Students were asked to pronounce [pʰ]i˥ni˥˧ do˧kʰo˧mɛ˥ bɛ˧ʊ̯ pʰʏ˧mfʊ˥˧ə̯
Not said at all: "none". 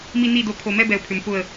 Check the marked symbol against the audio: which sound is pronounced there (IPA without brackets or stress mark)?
m